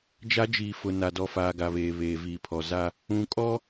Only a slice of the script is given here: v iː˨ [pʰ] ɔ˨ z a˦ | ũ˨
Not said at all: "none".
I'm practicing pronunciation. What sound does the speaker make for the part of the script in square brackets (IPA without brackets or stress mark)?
pʰ